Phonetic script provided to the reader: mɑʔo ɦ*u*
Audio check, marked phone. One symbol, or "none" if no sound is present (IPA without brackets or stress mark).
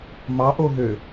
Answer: ø